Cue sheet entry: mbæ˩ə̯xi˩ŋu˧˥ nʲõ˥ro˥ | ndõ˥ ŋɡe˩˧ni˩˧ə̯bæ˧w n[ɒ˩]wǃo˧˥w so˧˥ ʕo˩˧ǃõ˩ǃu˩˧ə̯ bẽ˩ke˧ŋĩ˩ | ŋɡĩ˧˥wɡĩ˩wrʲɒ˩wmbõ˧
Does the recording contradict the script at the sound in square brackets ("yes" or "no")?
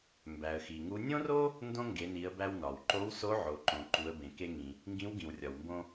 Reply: no